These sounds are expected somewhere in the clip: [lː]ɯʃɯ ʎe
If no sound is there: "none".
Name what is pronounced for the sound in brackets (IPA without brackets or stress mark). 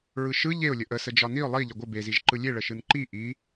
ɹ